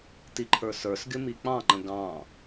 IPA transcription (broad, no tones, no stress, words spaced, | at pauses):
tiǃʰə˞sə˞sɡɪ mik͡pɑ̃ŋ͡ǃə̃ ɡɑ̃